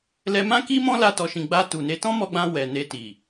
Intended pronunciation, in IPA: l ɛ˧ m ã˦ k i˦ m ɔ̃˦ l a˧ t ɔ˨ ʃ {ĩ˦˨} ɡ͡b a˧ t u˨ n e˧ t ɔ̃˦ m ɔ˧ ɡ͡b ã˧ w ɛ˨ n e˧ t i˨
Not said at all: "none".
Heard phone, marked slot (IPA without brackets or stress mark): ĩ˨